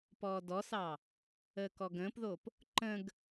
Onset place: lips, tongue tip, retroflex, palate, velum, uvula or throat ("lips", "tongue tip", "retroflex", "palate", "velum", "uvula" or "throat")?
lips